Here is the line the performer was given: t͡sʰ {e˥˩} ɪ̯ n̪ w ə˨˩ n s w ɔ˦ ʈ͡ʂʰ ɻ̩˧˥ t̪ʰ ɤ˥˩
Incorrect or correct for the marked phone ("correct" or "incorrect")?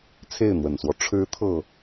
correct